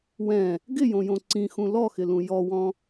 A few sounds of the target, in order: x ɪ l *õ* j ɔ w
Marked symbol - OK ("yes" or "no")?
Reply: no